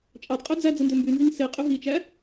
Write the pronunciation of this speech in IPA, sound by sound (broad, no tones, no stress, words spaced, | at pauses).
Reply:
t͡ʃʼɑdqʼø d͡zæ d͡zɯndømbynziŋ se qʼyɦit͡ʃæ